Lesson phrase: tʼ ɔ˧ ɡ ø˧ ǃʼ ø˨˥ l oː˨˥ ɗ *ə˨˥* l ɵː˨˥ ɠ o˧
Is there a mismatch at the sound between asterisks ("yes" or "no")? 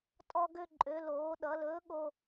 yes